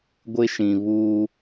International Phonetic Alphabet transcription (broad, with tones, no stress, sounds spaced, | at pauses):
ɡʷ ɪ˦ ʃ ĩ˨ β uː˦